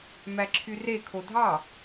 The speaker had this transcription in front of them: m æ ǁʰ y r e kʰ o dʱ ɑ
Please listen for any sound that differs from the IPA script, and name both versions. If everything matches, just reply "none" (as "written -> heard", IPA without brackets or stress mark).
none